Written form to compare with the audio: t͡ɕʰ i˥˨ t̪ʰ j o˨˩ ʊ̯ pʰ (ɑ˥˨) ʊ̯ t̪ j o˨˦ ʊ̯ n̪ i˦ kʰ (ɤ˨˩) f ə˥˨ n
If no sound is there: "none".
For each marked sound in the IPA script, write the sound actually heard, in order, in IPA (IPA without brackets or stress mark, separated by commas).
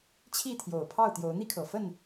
ɑ˥˨, ɤ˨˩